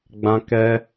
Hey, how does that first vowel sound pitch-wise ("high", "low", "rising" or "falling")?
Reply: high